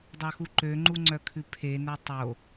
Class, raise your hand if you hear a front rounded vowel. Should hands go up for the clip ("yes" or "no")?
yes